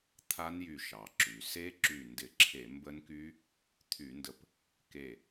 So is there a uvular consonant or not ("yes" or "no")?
no